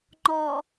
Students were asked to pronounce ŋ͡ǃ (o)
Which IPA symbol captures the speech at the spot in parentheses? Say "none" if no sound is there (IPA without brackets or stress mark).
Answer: ɔ